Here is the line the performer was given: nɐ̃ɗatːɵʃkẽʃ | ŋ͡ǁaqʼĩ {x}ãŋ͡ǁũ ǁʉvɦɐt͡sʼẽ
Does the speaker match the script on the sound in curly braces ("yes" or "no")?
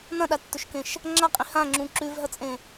no